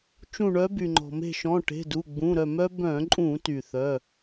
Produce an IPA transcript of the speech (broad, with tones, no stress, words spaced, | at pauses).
t͡ʃũ˧˩ɳœ˨˦by˩ŋ͡ǃɔ̤˩ me̤˧˩ʃɔ̃˩˧˩ʈe̤˩˧˩du˩˧˩ ɡ͡bũ˩˧˩ɾœ˧˩mœ˦ bœ̃˧˩˧ǃʼũ˧˩˧ty˩ θœ˩˧˩